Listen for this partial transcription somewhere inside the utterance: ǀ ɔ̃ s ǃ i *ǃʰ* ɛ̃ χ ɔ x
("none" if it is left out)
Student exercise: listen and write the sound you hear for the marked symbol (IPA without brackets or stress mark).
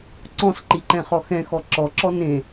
ǃ